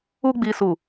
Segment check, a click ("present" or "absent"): absent